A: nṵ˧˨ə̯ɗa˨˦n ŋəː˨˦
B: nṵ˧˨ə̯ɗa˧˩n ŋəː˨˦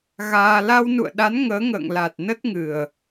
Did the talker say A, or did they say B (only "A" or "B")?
A